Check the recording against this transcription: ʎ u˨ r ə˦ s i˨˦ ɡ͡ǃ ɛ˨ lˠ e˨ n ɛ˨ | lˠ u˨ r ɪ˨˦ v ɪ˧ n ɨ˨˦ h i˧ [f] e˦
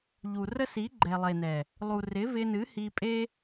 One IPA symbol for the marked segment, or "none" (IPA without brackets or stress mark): pʼ